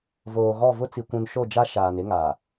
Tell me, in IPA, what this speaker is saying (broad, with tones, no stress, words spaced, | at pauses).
voː˨ ɣɔ˦˨vʊ˦ t͡si˨kʷũ˨n ʃo˦˨d͡ʒa˦ ʃaː˨nɪ˦ŋaː˨